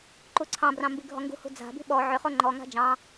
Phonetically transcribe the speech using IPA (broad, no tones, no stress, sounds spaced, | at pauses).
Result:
ǃ u ǀʰ ɑ̃ b r ɑ̃ m b i ɡʱ ɔ ŋ ɡ ṳ h ṳ d͡z a̤ b i̤ ɓ ɔ ʕ ʏ χ o ŋ͡ǃ ɔ ŋ a̤ d͡ʒ ɑ̃